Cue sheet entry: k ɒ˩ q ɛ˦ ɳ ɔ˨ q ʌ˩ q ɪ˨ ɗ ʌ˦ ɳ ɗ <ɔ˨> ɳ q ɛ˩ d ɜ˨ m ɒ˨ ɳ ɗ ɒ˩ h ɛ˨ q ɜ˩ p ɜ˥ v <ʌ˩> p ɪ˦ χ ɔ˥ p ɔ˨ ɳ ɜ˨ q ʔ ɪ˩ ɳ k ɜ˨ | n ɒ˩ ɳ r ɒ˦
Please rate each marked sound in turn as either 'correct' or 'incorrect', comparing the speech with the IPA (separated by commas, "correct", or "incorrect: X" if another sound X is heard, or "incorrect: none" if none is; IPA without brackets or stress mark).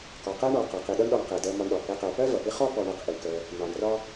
correct, correct